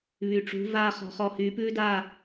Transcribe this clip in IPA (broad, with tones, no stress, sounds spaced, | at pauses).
β y˨ ʈ͡ʂ ṳ˨˦ v aː˦ χ ɔ̤˧ χ ɔ˧ h yː˨˦ p ʉː˦ d aː˦˨